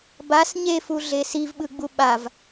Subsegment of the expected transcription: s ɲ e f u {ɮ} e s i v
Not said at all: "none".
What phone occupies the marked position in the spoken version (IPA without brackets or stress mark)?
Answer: ɮ